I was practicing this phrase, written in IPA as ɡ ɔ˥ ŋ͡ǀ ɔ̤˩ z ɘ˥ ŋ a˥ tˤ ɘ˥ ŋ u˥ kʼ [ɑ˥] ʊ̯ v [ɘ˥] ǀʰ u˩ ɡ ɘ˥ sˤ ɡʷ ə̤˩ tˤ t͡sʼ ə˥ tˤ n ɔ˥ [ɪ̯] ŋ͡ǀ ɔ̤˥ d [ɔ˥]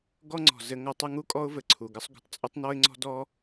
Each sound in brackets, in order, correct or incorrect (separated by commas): incorrect, incorrect, correct, correct